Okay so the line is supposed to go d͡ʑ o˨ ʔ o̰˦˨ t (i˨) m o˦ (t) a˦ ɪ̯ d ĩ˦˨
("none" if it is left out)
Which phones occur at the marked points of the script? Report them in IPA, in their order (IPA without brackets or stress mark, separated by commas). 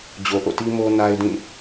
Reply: i˦, n